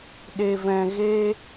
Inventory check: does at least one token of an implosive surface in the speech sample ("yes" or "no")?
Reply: yes